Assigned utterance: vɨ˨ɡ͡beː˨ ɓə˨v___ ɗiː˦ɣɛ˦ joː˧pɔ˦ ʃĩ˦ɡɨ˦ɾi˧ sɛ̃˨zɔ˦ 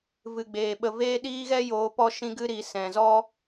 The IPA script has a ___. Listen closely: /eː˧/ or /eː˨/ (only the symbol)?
eː˧